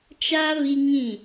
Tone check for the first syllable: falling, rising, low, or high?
high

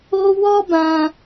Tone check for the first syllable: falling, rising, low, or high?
high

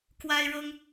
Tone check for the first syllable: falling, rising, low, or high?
high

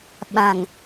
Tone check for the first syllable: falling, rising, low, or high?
low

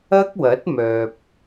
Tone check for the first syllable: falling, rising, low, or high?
high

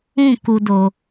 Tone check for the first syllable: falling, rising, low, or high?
falling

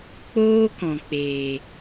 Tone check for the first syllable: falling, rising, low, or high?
high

